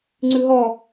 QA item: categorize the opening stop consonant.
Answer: click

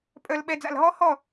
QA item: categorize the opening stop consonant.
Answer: ejective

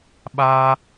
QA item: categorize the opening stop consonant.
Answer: implosive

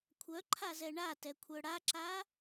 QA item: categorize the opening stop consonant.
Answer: aspirated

